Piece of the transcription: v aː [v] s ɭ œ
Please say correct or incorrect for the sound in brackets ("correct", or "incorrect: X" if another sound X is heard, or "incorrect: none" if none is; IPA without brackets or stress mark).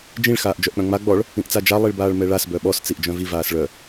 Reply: incorrect: none